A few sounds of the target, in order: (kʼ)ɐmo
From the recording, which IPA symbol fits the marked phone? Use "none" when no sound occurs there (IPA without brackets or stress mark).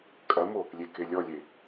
kʼ